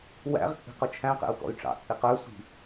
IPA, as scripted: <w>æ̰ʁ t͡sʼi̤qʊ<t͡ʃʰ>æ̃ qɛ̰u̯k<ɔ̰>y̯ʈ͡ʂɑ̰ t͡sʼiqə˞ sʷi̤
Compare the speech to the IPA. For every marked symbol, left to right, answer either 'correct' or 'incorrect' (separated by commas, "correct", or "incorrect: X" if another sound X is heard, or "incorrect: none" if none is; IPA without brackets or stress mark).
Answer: correct, correct, correct